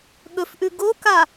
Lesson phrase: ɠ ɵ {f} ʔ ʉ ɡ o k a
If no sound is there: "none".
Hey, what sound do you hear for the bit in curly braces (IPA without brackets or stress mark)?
f